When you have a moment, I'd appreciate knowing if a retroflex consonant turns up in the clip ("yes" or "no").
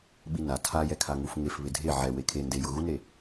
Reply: no